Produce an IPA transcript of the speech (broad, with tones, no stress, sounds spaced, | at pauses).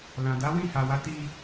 l ã˨ d a˨˦ w ĩ˦˨ h a˨ w a˨˦ t i˧